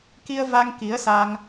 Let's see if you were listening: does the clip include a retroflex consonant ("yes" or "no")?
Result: no